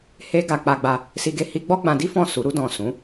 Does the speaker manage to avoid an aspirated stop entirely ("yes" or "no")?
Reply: yes